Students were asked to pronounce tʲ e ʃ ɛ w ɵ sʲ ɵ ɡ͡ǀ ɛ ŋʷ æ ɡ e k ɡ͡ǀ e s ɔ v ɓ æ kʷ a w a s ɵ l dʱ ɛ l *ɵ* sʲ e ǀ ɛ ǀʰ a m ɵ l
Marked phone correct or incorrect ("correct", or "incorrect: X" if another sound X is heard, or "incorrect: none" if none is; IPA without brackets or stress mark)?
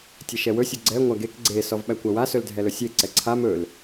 correct